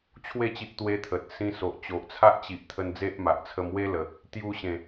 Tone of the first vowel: falling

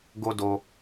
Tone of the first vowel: high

